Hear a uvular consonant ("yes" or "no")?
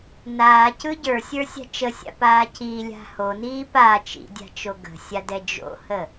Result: no